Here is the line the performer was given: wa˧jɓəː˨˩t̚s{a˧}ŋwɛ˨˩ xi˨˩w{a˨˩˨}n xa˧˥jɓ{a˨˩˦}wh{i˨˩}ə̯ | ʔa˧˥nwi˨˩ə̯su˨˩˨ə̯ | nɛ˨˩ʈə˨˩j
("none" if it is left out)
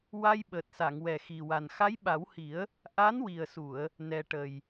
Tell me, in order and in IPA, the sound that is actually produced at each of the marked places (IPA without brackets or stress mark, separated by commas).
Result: a˨˩˨, a˨˩, a˨˩˦, i˨˩˦